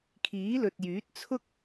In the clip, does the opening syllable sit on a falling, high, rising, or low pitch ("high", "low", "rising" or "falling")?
rising